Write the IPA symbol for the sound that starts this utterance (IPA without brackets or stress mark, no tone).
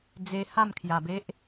d͡z